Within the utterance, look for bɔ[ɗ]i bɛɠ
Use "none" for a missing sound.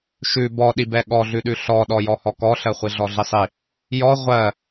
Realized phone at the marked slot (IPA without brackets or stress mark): ɗ